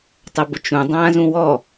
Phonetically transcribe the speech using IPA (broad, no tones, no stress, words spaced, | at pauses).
tˤəbʊt͡ʃũ dˤãːzũwɔ